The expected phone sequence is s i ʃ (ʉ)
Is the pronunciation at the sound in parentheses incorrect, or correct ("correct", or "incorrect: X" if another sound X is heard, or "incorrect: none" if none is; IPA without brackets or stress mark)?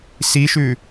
correct